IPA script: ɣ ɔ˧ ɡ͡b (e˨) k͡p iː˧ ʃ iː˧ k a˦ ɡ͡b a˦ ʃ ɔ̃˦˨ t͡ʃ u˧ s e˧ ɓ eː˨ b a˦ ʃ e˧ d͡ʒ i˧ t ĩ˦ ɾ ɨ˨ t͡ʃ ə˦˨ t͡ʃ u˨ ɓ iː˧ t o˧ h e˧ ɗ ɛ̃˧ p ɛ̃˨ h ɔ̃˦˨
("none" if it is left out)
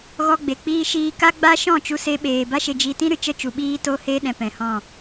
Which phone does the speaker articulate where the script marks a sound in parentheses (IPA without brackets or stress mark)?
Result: e˨